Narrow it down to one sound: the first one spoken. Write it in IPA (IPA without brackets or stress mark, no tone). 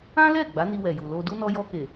ã